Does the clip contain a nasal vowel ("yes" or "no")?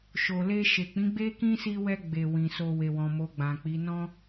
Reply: yes